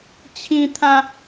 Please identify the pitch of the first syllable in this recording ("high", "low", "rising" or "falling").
high